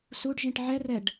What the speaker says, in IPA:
s u ɖ ʒ ĩ ʈ ʕ ɛ r ɛ ɖ

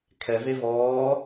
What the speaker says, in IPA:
kʰ ɛ v e v ɔː

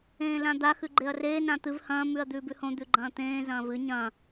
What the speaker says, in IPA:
ẽː l ã d̪ a x ʉ ɡ͡ǃ e ɐ̯ r eː n ã t̪ ɨ v h ɐ̃ː m ʉ ɐ̯ d̪ ʉː b ʉ h õ d̪ ʉ ɡ͡ǃ ɐ̃ː t̪ ẽː z ɐ̃ː v ɨ ɲ ɐ̃

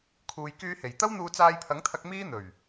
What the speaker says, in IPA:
kʰ uː˨ j k yː˧ h e˨˩ j t̪ ɐ˥ w n̪ uː˧ t͡s aː˧ j pʰ ɐ˨˥ ŋ t̪ʰ ɐ˧ k̚ m iː˥ n̪ ɵ˨˩ ɥ

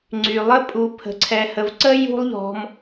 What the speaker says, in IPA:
ŋ͡ǀ y˩ lˠ ə˦ pʼ u˨ pʰ ə̤˨ ǀʰ ɛ˨ h ə˨ v ǀ ə˥ j ṳ˦ lˠ ʎ ɔ̤˨ m

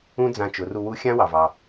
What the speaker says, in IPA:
ũ˥ d͡z ã˧ t͡ʃ ʊ˩˧ r u˧ w u˧˥ xʲ ã˥ w ɑ˩ v ɑ˩

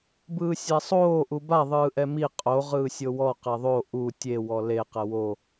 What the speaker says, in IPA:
b ɯː sʲ a sˤ oː ʔ u b a ðˤ ɯː ʔ ɛ m i qʼ o ʁ ɯː sʲ o w ɔ q e ðˤ o ʔ u tʲ e w ɔ l e q ɛ w o

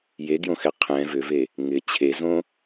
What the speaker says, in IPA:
j e ɡ j õ x ɛ qʰ ɛ̃ v ʏ v e | ŋ ɪ t͡ɕʰ e z õ

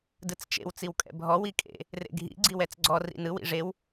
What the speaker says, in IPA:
d ɯ t͡s t͡ʃ ḛ w t͡s i w kʼ ɛ̰ bʱ ɔ w i kʼ ḛ | r ḛ ɡʱ ḭ ɡ͡ǀ i w ɛ t͡s ɡ͡ǀ ɔ r ḭ n ɯ w ḭ ʐ e w

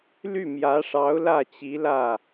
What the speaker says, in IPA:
l y˥˩ m j ä˧˥ ʂ ɑ˧˥ ʊ̯ l ä˥˩ t͡ɕ i˧˥ l ä˥˩

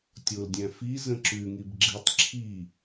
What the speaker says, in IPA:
tʲ o l dʲ æ̃ f i z ə̃ ǁ ʉ ŋ i b ɡ͡ǁ i tˤ ǁʰ i

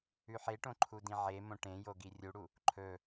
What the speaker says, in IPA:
ʉ ħ e ʈ õ ǃʰ u d ĩ ʕ e m õ ʈ ẽ j o ɡ i rʲ u ɽ u | ǃʰ ɵ

